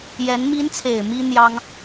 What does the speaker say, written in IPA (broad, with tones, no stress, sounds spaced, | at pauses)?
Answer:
j ɛ˧˥ n m i˧˥ n t͡sʰ e˨˩ ɪ̯ m i˥ n̪ j ɑ˥ ŋ